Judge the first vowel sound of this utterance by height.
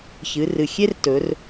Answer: high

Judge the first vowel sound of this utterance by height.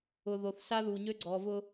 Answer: high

